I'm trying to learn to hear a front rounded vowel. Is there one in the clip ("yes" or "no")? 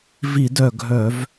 yes